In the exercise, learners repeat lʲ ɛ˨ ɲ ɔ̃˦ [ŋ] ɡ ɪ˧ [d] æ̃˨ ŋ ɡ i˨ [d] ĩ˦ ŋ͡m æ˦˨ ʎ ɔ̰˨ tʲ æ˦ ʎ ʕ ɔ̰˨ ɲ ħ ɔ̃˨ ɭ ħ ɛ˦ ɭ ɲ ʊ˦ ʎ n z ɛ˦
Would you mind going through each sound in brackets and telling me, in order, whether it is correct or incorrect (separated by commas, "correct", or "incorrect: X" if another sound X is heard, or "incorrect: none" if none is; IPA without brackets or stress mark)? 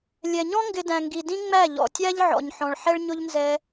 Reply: correct, correct, correct